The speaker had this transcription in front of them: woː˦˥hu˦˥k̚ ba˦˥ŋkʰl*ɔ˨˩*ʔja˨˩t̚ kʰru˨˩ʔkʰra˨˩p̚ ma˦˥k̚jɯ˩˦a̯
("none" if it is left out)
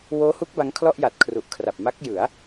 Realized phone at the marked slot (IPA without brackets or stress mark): ɔ˥˩